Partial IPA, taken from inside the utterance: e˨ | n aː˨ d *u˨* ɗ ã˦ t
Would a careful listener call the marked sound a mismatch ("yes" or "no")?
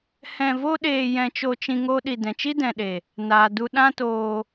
yes